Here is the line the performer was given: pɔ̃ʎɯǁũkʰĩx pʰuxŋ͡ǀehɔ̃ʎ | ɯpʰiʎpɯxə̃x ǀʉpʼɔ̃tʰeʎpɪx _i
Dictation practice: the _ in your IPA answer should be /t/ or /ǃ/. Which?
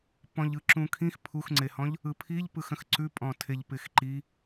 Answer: ǃ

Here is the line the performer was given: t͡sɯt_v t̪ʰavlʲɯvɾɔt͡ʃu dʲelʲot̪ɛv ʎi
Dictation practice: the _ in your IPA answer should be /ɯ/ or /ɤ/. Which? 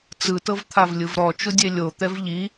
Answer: ɤ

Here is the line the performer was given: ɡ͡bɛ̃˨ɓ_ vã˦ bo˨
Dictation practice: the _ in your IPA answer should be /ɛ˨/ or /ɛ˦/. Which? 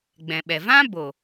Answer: ɛ˨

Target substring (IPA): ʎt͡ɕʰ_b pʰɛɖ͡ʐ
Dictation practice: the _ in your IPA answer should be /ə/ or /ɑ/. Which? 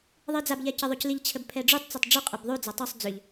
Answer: ə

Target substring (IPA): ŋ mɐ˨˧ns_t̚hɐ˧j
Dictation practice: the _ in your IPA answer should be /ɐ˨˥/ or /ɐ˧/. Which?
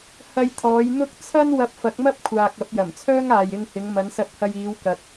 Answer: ɐ˧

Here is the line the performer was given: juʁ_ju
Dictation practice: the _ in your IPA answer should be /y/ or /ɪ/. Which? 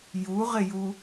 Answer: ɪ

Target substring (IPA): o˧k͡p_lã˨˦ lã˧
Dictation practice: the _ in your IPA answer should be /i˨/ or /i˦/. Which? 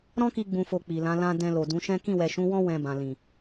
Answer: i˨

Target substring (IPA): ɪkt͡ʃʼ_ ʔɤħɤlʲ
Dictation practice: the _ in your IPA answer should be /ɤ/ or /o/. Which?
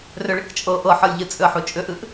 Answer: ɤ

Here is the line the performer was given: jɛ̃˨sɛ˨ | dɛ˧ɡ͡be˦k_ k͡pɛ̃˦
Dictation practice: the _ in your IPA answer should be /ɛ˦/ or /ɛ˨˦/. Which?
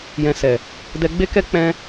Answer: ɛ˦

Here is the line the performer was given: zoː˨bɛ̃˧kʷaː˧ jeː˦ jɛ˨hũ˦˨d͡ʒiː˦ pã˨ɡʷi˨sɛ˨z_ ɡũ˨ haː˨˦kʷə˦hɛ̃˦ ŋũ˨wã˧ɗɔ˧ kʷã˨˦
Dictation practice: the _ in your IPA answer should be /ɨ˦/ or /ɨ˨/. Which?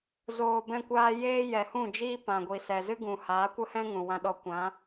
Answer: ɨ˦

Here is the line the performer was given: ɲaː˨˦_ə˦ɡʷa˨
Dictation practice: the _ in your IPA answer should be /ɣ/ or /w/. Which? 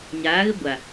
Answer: ɣ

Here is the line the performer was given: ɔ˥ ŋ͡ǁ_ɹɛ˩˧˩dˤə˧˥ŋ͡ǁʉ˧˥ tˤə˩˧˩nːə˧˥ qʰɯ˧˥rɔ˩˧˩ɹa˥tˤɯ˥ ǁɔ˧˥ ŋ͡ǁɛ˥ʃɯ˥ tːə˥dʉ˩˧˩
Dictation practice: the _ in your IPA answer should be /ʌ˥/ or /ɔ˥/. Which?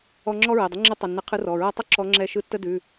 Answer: ɔ˥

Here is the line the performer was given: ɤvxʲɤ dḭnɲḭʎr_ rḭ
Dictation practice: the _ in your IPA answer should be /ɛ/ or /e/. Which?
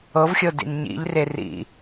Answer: e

